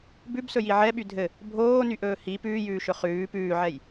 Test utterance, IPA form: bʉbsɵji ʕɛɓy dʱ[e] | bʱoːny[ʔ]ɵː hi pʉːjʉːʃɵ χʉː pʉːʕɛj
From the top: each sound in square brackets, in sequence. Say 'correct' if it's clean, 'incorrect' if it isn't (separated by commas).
incorrect, correct